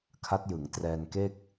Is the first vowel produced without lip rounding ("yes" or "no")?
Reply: yes